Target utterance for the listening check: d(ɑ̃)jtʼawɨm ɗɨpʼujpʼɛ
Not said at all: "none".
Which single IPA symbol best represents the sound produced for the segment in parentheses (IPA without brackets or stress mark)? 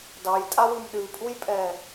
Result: ɑ